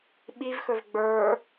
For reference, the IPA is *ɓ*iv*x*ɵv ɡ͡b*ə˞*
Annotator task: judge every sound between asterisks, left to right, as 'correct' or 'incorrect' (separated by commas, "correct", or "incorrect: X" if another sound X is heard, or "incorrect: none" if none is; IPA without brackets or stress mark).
correct, correct, correct